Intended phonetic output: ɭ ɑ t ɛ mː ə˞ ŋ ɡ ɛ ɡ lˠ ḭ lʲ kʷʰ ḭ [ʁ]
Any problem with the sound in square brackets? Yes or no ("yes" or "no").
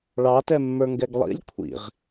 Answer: no